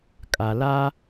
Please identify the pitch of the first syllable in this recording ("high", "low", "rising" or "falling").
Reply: low